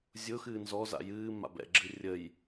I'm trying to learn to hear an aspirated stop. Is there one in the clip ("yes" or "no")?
no